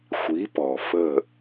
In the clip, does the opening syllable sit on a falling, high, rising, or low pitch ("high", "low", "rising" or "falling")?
rising